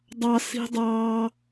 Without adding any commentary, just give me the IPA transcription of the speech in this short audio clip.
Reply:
dˤ ɑ˧ s i̤˦ dˤ ɑː˦

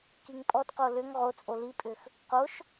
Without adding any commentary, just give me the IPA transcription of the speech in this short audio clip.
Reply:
k i ŋ pʼ ɔ t q o l ʏ ŋ ʁ o t͡sʼ o l i pʼ ʏ x | q o ʃ

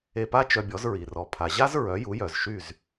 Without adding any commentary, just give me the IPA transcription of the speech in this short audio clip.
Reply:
e˧ p a˥ t͡ʃ œ˧ bʲ ɔ˩˥ z ɹ i˩ r ɔ˩ pʰ a˩ ʑ a˥ z ɹ œ˩˥ j u˩˥ j œ˩ z ʃ y˥˩ z

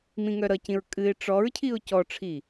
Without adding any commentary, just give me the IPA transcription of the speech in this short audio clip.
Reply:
m ĩ ŋ œ ɾ ʌ c ĩ ɹ kʼ ɨ ɪ̯ ʈ͡ʂ ɔ ɹ cʰ i ʊ̯ c ɔ ʈ͡ʂʰ i

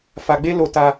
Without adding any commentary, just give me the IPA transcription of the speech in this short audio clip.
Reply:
f a˧ ɡ͡b e˦ l o˧ t a˧

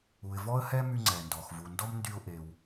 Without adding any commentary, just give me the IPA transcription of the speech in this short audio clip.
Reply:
u˩ ɪ̯ v ɔ˥ ə̯ h ɛ˥ m y˧ ŋ͡ǀ ɛ˩ n d ɔ˩ x v u˩ n d ɔ˥ m n d y˧ ʊ̯ ʔ e˩ w

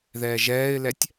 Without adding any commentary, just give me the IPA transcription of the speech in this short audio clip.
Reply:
ð ɛː ʒ ɛː ɪ̯ l ɛ tʲ

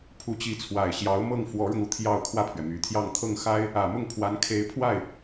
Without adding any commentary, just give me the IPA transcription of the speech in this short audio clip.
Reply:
pʰ u˧˥ t͡ɕ i˧˥ t͡sʰ w a˨˩ ɪ̯ ɕ j ɑ˧˥ ʊ̯ m ɤ˥˩ ŋ f w ɔ˧˥ ɻ ʊ˧ ŋ u˨˩ t̪ʰ j ɑ˥˧ ʊ̯ kʰ w ä˥˩ pʰ ɥ ɛ˩ m y˨˩ t̪ʰ j ɑ˥˧ ŋ t̪ʰ ɤ˥˩ ŋ x a˥ ɪ̯ | ä˨˩ m ʊ˥˩ ŋ pʰ w a˧˥ n kʰ e˧˥ ɪ̯ pʰ w a˥˩ ɪ̯

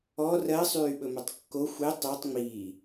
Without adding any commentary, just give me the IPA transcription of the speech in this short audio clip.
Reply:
ɔ r ɜ sˤ yː ɓ ɵ m œ tˤ kː o xʷ e tˤ o tˤ ŋ͡m iː

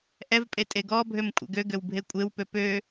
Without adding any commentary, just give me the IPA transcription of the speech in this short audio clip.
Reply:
ʔ ɛ v pʼ e tʼ e ɡ ɔ bʱ ø m kʷʼ ɛ̰ ɡ ø ɡ ø w bʱ e kʷʼ e w p ø p ø

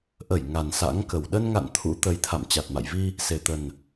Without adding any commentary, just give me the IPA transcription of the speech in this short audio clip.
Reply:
ʔ ə˧˩ j ŋ a˨˩ n s a̰˧˥ ŋ k ə˨˩ w ɗ ə˧ n ŋ a̰˧˨ n t̪ʰ ṵ˧˥ t̪ ə˨˦ j t̪ʰ a̰˧˨ m t͡ɕ a˨˩ t̚ m a̰˧˨ j v i˧ | s e˨˩ t̪ ə˨˩ n

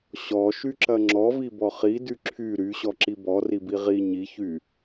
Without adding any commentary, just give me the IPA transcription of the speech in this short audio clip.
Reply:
ɕ ɔ ʃ y ǁ ɐ ŋ͡ǁ ɔ v i b ɔ χ i d y ǁʰ y ɾ y ɕ ɔ ǁ i b ɔ r i b i ʁ i ɲ i ç y

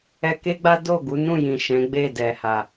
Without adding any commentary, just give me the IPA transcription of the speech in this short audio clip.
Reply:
ɛ˧ k e˦ ɡ͡b a˦ d o˦˨ ɡ u˨˦ n ũ˦˨ j ĩ˨ ʃ ɛ̃˨˦ ɡ͡b e˦˨ d ɛ˨ h a˨

